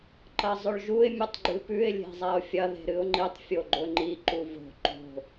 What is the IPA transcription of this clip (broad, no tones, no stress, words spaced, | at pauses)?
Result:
ǃɐzˤɵɭʒuɪ̯ mʲɨtˤɡ͡ǃɨpʉɪ̯ lʲe̤zˤaʊ̯fʲɐ ðe̤ɾɨʊ̯ŋ͡ǃitˤ fʲoɡ͡ǃɵŋ͡ǃi ǃuvo̤ ǃo̤